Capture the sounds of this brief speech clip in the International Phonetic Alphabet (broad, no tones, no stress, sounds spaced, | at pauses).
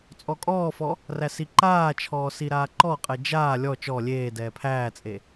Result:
t͡sʼ ɔ kʼ ɔː f ɔ | r æ s i ǃ aː t͡ʃʰ ɔː s i ɾ aː ǃ ɔ qʼ ɛ d͡ʒ aː lʲ ɔ t͡ʃ ɔ lʲ eː d ɛː pʰ æː t͡sʼ e